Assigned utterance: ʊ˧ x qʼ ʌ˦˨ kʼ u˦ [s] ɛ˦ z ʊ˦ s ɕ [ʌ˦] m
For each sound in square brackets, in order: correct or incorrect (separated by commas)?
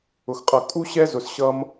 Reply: incorrect, correct